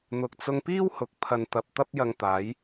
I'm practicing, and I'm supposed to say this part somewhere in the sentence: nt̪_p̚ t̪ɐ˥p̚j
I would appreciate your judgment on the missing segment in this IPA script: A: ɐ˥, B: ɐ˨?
B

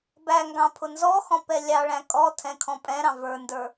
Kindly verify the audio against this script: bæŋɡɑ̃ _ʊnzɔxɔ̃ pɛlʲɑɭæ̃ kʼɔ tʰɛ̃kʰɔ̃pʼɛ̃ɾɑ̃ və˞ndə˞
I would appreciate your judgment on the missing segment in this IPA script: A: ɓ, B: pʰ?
B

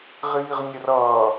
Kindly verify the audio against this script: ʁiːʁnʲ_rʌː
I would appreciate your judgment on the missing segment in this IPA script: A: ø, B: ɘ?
B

